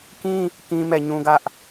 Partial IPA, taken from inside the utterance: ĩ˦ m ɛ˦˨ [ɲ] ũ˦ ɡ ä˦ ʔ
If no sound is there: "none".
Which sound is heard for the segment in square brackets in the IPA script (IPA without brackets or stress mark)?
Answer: ɲ